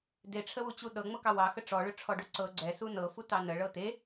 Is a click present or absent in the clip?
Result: present